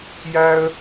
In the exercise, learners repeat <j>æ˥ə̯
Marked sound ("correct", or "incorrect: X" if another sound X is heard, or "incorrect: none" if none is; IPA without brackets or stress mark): correct